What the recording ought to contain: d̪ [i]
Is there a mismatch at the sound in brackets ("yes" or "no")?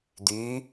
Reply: yes